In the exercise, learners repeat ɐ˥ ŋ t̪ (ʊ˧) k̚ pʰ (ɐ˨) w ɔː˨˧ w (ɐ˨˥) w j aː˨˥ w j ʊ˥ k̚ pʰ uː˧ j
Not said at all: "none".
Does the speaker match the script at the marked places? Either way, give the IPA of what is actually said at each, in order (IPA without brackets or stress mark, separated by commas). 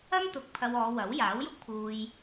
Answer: ʊ˧, ɐ˧, ɐ˨˥